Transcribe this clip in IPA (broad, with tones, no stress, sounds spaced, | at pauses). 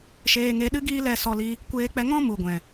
ʃ eː˧ ŋ e˧ ɗ ɨ˦ ɡ iː˦ l ɛ˧ s ɔ˧ l i˧ | kʷ eː˧ k͡p ɛ˧ ŋ ɔ̃˦ m u˨ ɡʷ ɛ̃˨